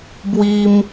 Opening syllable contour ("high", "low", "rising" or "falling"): high